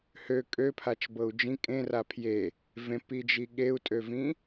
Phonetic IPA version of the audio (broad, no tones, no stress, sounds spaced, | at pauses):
h ø kʼ ø pʰ a t͡ʃ b ɤ u̯ d͡ʒ ĩ kʼ ẽ r a pʰ j e | v ẽ p i d͡ʒ i ɠ e u̯ tʼ ø v ĩ